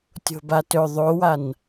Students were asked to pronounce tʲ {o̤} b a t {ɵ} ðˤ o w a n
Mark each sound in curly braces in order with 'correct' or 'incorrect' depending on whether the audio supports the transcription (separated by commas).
correct, correct